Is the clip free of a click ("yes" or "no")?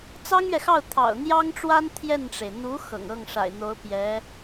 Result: yes